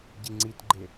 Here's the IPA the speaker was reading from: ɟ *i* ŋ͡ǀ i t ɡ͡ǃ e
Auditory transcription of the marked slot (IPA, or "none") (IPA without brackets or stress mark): i